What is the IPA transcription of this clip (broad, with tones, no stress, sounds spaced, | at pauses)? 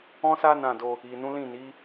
ɔ̃˦ s a˦ n ã˦˨ d o˧ | i˨ n ũ˨˦ l ĩ˦˨ n i˨˦